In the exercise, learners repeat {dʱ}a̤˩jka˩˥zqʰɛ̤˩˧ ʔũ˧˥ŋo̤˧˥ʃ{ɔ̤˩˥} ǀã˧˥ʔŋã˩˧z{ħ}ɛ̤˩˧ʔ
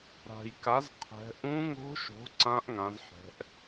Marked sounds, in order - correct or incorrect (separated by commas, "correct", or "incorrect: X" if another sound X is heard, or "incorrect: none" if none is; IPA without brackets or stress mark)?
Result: incorrect: ɾ, incorrect: o̤˩˥, correct